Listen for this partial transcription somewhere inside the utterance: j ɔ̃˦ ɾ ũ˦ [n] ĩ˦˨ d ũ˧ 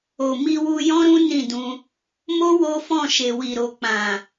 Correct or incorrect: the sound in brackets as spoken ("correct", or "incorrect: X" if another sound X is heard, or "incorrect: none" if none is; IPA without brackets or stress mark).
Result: correct